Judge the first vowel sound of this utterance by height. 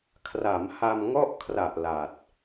low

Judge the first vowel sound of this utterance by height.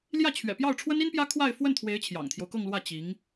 low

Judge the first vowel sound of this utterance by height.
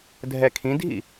mid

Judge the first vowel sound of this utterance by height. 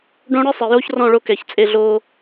mid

